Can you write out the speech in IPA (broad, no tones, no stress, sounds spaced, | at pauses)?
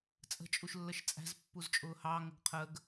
t͡sʼ ə̤ t͡ʃʼ u ʃ lː ə ʃ t͡sʼ æ̤ z pː u z t͡ʃʼ ʊː h ɑ ŋ ʊ ɡ qʰ ə ɡ